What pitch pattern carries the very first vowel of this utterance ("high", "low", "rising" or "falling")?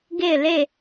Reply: falling